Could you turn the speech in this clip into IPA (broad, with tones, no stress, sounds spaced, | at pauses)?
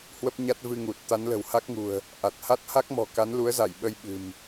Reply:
h w ə˦˥ p̚ ɲ a˦˥ t̚ v ɨ˧ ŋ u˨˩ t̚ t̪ a˨˦ n l ə̤˨˩ w h a˦˥ k̚ ŋ ṳ˨˩ ə̯ | ʔ a˨˩ t̚ h a˦˥ t̚ h a˦˥ k̚ m ɔ̤˨˩ k a˨˦ n l u˨˦ ə̯ z a˧˩ j ɓ ə˧ j ɓ ɨ̤˨˩ m